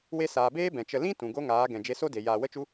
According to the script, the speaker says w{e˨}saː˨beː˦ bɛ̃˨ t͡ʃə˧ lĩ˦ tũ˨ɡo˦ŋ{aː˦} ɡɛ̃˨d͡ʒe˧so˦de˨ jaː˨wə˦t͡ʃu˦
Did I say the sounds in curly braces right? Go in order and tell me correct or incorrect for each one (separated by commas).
incorrect, incorrect